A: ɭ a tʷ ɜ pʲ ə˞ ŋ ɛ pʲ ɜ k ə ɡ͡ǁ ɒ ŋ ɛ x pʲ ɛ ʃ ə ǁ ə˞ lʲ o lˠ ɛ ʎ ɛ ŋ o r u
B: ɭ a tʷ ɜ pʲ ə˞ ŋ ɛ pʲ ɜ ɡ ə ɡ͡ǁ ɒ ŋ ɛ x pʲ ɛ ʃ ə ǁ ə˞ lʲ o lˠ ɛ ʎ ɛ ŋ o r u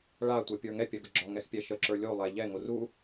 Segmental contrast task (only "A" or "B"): B